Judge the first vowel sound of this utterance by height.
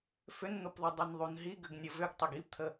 high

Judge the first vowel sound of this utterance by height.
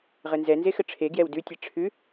mid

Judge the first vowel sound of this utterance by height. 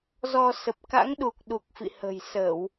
mid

